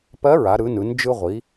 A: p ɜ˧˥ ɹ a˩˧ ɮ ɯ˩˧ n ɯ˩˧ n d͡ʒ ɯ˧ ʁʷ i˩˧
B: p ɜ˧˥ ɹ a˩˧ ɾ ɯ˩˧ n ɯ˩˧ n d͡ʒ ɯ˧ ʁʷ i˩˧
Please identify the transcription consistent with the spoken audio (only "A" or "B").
B